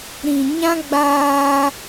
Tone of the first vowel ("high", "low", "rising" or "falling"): low